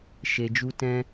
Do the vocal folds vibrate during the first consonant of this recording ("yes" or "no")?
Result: no